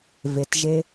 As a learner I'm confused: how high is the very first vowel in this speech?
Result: mid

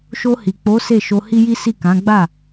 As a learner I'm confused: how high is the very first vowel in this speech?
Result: mid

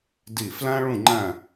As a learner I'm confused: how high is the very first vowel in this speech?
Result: high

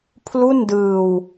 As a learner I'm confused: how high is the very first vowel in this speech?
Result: high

